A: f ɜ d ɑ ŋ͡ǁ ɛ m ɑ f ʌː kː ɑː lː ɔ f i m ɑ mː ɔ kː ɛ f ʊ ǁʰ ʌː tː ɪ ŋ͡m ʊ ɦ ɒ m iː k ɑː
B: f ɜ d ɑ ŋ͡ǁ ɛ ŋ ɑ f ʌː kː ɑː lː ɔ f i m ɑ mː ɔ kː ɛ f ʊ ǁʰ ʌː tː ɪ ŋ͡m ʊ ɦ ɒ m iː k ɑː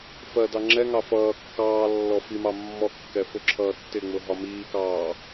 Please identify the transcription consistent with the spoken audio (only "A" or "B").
B